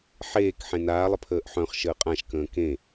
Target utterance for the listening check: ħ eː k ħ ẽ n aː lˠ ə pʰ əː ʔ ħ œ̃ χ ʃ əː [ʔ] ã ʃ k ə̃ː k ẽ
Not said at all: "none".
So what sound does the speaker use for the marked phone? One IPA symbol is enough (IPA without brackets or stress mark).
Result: qʼ